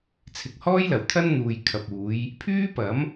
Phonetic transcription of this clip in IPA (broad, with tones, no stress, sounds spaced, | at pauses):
t͡sʰ ɪ˨ k̚ h ɔː˥ j l ɐ˨˩ w t̪ʰ ɐ˥ n n̪ uː˨ j kʰ ɐ˨ p̚ uː˨˧ j | pʰ yː˥ p ɐ˨˥ m